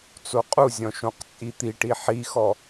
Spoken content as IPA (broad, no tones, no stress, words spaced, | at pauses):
t͡soqʼuzʲɔ̃ ʃõqt͡sʼit̪iʈi ħixɔ